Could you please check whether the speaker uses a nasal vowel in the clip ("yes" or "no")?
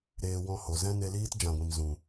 yes